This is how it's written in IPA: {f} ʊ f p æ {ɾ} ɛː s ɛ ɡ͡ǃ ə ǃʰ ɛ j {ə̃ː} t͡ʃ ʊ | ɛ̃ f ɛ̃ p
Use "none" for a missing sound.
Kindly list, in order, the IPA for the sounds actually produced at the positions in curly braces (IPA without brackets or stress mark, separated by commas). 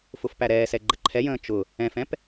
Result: f, ɾ, ə̃ː